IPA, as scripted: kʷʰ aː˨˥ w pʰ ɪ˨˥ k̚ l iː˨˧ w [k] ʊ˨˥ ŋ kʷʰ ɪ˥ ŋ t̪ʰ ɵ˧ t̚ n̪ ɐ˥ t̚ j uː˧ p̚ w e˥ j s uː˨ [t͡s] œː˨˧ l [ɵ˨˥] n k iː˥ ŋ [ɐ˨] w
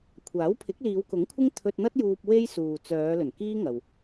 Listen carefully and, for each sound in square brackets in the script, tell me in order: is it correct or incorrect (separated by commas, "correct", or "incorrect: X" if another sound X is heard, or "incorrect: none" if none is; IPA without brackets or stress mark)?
correct, correct, incorrect: ɵ˨˩, correct